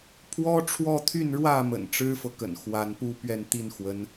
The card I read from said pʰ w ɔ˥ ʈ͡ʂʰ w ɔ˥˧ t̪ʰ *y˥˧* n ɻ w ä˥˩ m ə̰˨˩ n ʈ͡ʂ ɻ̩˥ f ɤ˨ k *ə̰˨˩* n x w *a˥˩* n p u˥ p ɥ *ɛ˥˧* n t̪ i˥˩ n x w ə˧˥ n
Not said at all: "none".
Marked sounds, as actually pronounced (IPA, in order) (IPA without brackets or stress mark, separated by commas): y˥˧, ə̰˨˩, a˧˥, ɛ˥˧